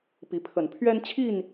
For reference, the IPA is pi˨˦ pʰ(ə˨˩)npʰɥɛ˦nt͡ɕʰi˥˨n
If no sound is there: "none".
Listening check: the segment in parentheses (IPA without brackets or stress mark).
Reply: ə˨˩